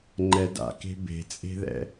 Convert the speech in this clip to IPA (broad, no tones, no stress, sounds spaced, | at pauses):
ŋ͡ǃ ɛ d a̰ k e̤ b e̤ t͡sʼ e̤ ð ɛ̰